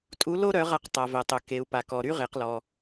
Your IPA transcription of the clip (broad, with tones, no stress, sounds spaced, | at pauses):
tʼ u˧˥ l o˥ ɾ œ˧˥ ʁ a˧ q tˤ a˩ v ɛ˩ tˤ œ˩ k e˩˧ u̯ p a˩ k ɔ˩ ɾ y˥ ʁ e˩˧ q l ɔ˩